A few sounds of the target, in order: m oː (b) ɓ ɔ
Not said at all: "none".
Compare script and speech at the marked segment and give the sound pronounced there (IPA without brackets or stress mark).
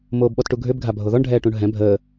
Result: b